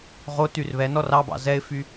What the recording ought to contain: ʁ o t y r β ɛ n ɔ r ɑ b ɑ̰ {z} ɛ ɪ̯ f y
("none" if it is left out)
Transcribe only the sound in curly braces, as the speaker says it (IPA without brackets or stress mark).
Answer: z